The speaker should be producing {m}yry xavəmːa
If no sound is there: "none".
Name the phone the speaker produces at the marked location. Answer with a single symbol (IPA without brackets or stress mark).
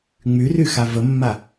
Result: ŋ͡m